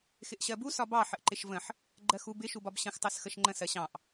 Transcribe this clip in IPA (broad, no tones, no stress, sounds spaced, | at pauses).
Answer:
x ɪ ʔ ɕ ɜ b u s ɒ b ɑ ħ ə ʔ ǃ ɪ ʃ v ə̃ ħ | ɡ͡ǃ ɜ x u b ɪ ʃ u b ɒ b ɕ ə̃ x tˤ ɜ s x ə ʃ ŋ͡ǃ ə̃ s ɜ ɕ ɑ̃ ʔ